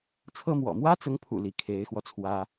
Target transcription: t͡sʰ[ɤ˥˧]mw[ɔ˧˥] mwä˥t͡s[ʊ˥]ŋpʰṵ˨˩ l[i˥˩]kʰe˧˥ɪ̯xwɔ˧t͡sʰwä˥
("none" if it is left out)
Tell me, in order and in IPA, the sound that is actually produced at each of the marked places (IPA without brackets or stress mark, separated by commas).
ɤ˥, ɔ̰˨˩, ʊ˧˥, i˧˥